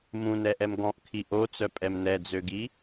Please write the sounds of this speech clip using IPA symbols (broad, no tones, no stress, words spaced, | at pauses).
mũnɛʔɛm ɡɔ̃ʔkʰi ʔot͡sœpʼɛm nɛd͡zøɡi